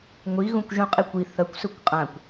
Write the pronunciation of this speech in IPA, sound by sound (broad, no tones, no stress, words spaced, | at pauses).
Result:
ŋʷi ɣũkʷʒũqʼikʷi θɐkʷ sɵkʷqʼãkʷ